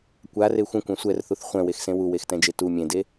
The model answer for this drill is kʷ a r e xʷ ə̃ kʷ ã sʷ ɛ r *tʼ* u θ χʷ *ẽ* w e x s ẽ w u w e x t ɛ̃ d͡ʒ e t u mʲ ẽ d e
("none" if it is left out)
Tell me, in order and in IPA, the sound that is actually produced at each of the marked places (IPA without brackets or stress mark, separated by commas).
θ, ɛ̃